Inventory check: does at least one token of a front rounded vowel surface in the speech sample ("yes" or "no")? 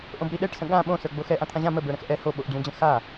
no